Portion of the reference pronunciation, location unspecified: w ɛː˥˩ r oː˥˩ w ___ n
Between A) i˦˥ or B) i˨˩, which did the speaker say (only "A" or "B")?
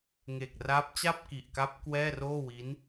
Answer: A